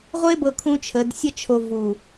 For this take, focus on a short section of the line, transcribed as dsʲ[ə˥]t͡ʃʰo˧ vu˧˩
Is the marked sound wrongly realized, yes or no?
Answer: no